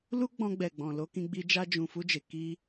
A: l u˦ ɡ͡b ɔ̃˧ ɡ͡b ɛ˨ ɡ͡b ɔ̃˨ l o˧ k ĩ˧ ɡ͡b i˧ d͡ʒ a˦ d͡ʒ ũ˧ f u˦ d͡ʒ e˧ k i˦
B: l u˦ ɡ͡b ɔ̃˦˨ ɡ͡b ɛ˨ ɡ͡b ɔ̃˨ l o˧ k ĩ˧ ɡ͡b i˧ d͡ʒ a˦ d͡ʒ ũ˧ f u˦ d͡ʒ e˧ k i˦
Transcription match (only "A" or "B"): A